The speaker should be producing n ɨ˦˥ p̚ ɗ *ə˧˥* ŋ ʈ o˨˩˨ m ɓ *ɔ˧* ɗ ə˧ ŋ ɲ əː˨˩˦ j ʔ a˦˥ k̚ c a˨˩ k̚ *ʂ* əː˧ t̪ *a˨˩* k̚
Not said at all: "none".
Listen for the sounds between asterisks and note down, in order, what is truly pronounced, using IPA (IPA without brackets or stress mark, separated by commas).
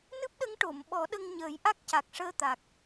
ə˧˥, ɔ˨˩˦, ʂ, a˨˩